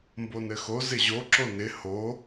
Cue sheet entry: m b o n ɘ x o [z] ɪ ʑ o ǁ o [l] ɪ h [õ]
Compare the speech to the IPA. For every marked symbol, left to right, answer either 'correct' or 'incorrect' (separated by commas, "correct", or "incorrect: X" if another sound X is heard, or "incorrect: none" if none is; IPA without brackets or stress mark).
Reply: correct, incorrect: n, incorrect: o